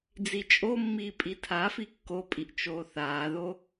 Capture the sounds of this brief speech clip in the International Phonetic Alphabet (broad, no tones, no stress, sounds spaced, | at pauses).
d͡z i t͡ʃʼ o mː iː pʼ i tʰ a f i kː o pʼ i ʔ t͡ʃ oː θ aː ð o